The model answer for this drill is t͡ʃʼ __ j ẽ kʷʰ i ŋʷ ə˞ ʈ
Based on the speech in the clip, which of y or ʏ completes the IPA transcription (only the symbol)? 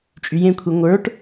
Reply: y